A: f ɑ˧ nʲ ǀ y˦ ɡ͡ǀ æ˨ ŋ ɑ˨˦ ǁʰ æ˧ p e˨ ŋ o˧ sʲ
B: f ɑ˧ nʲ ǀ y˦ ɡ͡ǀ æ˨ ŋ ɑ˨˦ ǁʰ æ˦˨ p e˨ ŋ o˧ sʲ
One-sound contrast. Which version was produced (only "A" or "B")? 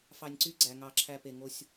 A